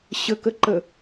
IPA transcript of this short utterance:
ɕ ə k ə ǃ ə

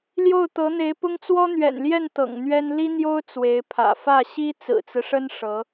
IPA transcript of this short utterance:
l j o˥˩ ʊ̯ t̪ ɤ˧˥ n̪ e˧˥ ɪ̯ p ʊ˥ ŋ t͡s w ɔ˥ n̪ ɥ ɛ̰˨˩ n l j ɛ˥˩ n t̪ ɤ̰˨˩ ŋ n̪ ɥ ɛ˥ n l i˥ n̪ j o˥ ʊ̯ t͡s w e˧˥ ɪ̯ pʰ ä̰˨˩ f ä˥˩ ɕ i˥ t͡s ɹ̩˨˩ t͡s ɹ̩˦ ʂ ə˥ n ʂ ɤ˧˥

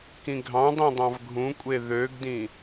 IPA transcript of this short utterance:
k ĩ ɡʱ ɑ̃ dˤ ĩ dˤ ɑ̃ v ɡʱ ũ kʷʼ e ð ø ɡ d ĩ

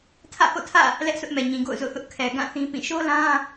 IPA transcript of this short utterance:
tʰ ä̰˦˨ h o̰˦˨ tʰ ä̰˦˨ | l ɛ˦ ʔ s ʊ˦ ʔ m ɛ˨ ɲ ĩ˨ ɡ o̰˦˨ ʊ̯ z o̰˦˨ θ ʊ˦ ʔ kʰ ɛ˨ ɡ ã˦˨ θ ĩ˦ p ĩ˦˨ ʃ o˦ l ã˦

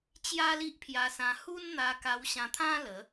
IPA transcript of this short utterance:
t͡ɕ j a˦ l i˦ ʔ pʰ j a˧ s ã˧ h u˦ n n̪ a˧ k a˧ w ɕ ã˧ t̪ʰ ã˦ l ə˨˦

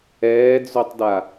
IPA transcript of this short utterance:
ɛː d͡z o tˤ d a

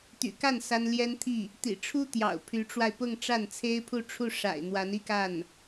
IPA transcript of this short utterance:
t̪ y̰˨˩ k a˥˩ n s a˥ n l j ɛ˥ n t̪ʰ i˥˩ | t̪ ḭ˨˩ ʈ͡ʂʰ u˥ t̪ j ɑ̰˨˩ ʊ̯ pʰ y˧˥ ʈ͡ʂ w a˧ ɪ̯ p ʊ˥˧ ŋ ʈ͡ʂ a˥˩ n t͡sʰ e˥ ɪ̯ pʰ u˥˧ ʈ͡ʂʰ u˥˩ ʂ a̰˨˩ ɪ̯ n̪ w a˧˥ n i˥˧ k a˥˩ n

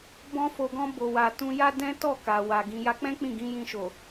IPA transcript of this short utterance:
b ɔ̃˧ f o˨ ɡ ɔ̃˧ b o˨ w a˨ t ũ˧ j a˦ d ɛ̃˦ t ɔ˦˨ k a˨ w a˨ ɡ ĩ˨ j a˧ k͡p ɛ̃˦ k͡p ĩ˦˨ ɡ ĩ˨˦ j ĩ˧ ʃ o˨

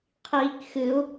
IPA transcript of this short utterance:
qʰ iː k x ɨ u̯

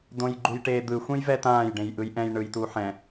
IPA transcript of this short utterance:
d õ j ɡ͡ǃ u j ʈ eː d̪ ɯ xʷ ẽ j v ɛ t ãː j ɖ ẽ j ʔ ɯ j ʔ ɛ̃ j ɳ ɯ j t u ħ ɛ̃

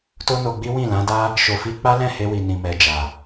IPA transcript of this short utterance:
t o˦ n o˧ ɡ͡b i˦ w ĩ˦˨ l ã˨˦ d a˦ | ʃ o˧ f i˦ k͡p a˦ l ɛ̃˦˨ h e˧ w i˨ n ĩ˨ m ɛ˨ d͡ʒ a˨

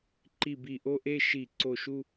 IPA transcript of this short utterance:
ǃ i˧˩ b i˧˩˧ ʔ o˧˥˧ ʔ e˥˧ ʃ i˧˩˧ ǀ o˧˩ ʃ u˥˧

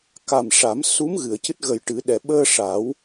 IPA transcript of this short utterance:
k a˨˩ m ʂ a˨˩˦ m s u˧˥ m ɣ ɨ˨˩˨ ə̯ c ɨ˦˥ t̚ ɣ ə˨˩ j ʈ ɨ˨˩˦ ɗ ɛ˨˩ ɓ əː˧ ʂ a˨˩˦ w

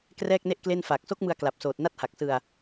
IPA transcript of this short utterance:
k r ɛː˥˩ k̚ n e˥˩ ʔ k l e˥˩ n f aː˨˩ k̚ s o˦˥ k̚ m ɯ˧ a̯ k l a˨˩ p̚ s oː˨˩ t̚ n a˦˥ t̚ h a˨˩ k̚ s ɯ˧ a̯

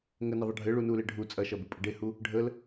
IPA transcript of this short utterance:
ŋ ə n ə ðˤ ɐ ɖʱ ɘ ɭ u n u l e ɖʱ u t͡sʼ ɐ ʃ ɐ b u pʼ ɘ ɖ e h u | ɖʱ ə l

